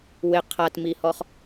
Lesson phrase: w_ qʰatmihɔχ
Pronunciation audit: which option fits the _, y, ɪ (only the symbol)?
ɪ